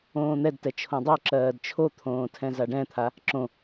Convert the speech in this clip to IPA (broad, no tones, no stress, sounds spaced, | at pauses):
õː n̪ ɛ d t ɛ t͡ʃʰ õ dˤ o ǁ ɜː d t͡ʃʰ o t̪ʰ õː tʰ ɛ̃ z a ɖ ɛ̃ t̪ʰ a | ǁ õ